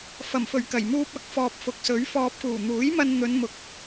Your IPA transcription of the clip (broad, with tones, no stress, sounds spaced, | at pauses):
f ɐ˨˩ m f ɵ˨˩ ɥ k ɐ˨˩ j m uː˧ p̚ ɐ˨˥ k̚ f ɔː˨ p̚ f ʊ˨ k̚ s ɵ˨˥ ɥ f ɔː˧ p̚ k uː˨˩ n̪ uː˨˥ j m ɐ˧ n n̪ ɵ˨˧ n m ʊ˧ k̚